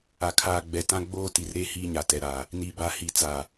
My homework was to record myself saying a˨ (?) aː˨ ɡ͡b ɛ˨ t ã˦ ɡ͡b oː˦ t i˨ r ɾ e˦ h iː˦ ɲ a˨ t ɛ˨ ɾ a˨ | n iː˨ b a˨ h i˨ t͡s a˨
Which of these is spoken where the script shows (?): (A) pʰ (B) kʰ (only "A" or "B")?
B